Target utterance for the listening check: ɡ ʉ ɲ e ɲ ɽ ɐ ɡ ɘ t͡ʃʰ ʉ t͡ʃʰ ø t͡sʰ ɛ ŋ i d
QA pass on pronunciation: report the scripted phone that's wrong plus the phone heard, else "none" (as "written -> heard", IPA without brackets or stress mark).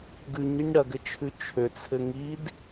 ɛ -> ɘ